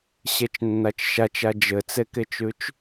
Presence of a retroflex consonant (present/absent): absent